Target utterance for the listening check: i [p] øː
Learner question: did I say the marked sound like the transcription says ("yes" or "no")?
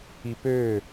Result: yes